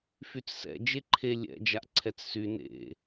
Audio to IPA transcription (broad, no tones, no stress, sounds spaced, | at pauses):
f y t͡s s ɛ̰ d͡ʒ e ǃʰ e lʲ ɛ̰ d͡ʒ a ʔ ǀʰ ɛ t͡s s y n ḛ